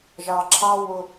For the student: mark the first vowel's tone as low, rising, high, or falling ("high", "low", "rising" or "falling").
low